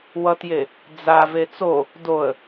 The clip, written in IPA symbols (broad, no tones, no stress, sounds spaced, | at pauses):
w ʌ t j e | d͡z a v e t͡s o | d o ə̯